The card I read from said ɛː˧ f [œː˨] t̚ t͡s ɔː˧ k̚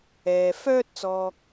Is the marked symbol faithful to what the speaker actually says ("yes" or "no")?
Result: no